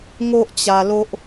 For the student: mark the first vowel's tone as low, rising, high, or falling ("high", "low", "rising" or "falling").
high